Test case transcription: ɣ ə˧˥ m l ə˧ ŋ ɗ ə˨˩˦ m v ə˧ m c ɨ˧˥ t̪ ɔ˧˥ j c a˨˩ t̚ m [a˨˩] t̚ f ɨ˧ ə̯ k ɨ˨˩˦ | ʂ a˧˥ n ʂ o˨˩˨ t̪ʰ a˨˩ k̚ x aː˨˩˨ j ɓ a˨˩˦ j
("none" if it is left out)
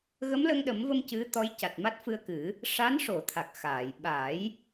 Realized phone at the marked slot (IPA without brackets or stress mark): a˦˥